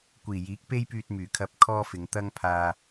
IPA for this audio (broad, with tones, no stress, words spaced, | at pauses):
kʷiː˨˩jiː˨˥k̚ pe˥jpyː˧t̚myː˨˩kʰɐ˧p̚ kʰɔː˥fɪ˨˧ŋ t̪ɐ˥ŋpʰaː˧